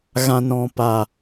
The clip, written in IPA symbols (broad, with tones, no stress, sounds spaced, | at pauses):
ɣ ã˨ n ɔ̃˨ p a˨